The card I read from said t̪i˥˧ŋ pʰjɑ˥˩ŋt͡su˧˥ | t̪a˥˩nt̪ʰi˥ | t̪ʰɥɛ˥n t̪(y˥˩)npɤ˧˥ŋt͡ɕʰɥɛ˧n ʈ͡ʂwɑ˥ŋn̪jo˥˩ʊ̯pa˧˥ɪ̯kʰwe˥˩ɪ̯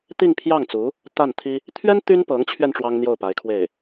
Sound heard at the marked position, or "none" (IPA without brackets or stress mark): y˥